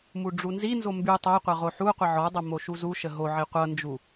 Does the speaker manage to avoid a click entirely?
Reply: yes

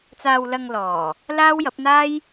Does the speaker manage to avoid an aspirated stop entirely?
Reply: yes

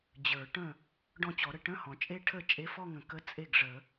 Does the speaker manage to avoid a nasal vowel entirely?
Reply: no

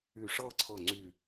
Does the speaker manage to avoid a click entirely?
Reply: no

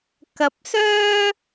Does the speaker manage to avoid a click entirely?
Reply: yes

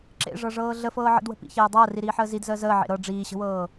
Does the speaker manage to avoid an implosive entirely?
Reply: yes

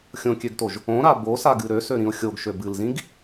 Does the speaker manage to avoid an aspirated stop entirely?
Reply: yes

